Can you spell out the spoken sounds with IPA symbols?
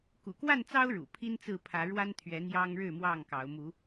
k ṵ˨˩ k w a˥˨ n t͡s ɑ˦ ʊ̯ ɻ ṵ˨˩ pʰ i˦ n t͡s ɹ̩˥˨ pʰ ä˨˦ ɻ w a˦ n t̪ʰ ɥ ɛ˨˦ n̪ j ɑ˦ ŋ ɻ ɻ̩˥˨ m w ɑ˥˨ ŋ k ɑ˨˦ ʊ̯ m u˨˦

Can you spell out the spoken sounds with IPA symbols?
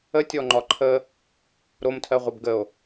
ə tʲ ɔ ŋ͡ǃ ɒ ǃʰ ə | ɾ o m tʰ ɜ ʁʷ ʌ b ɡ ə o̯

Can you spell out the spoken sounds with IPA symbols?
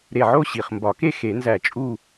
ɾ e˧˩ ʕ o˥˧ ɕ i˩ χ m b ɒ˨˩˦ k e˥˧ x e˨˩˦ n z æ˧˩ t͡ʃʼ u˥˧

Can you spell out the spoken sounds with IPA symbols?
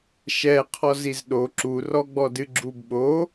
ʃ ɛ qʰ ɔ z i z ɗ o ǁ u r ɔ ɡ͡b ɔ d ɨ ɡ͡ǁ u b ɓ o

